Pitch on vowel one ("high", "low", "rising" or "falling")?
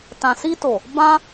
low